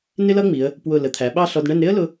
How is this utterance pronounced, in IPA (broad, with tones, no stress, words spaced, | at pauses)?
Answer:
nɪ˥lʌ˥ŋ͡mi˩˧ə̯ | pwʊ˧˩ lə˩˧t̪ʰæ˩˧ɓɑ˥˧ ɬɔ˧dɳɛ˥˧n ɾɪ˥ə̯lʊ˧